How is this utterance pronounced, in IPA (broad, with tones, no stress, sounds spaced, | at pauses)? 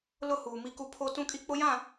l ʊ˦˨ h uː˨ m i˦ k u˦ pʰ o˦ t ũ˦ kʼ i˦ k͡p ʊ˦ j ã˦˨